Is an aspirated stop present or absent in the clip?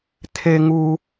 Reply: present